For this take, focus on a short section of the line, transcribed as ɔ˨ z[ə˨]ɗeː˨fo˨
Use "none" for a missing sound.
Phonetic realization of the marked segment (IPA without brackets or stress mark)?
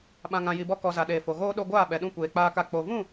a˨